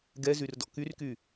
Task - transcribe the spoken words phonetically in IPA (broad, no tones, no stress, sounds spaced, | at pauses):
ɡ ɛ z y r d ɔ̰ k y r k y